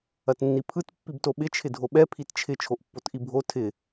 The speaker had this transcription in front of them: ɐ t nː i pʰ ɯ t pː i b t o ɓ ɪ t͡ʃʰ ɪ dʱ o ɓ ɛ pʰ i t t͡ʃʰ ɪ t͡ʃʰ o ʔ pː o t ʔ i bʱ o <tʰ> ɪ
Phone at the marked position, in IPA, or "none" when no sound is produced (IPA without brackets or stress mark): tʰ